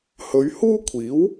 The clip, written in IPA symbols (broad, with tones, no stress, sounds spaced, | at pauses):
h ɵ˨˧ ɥ h uː˥ kʷʰ iː˨˥ w